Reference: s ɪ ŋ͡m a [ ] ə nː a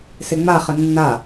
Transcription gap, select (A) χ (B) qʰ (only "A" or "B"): A